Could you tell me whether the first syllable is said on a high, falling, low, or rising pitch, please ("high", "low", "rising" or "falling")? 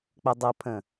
low